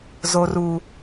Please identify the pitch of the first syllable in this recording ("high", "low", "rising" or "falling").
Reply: high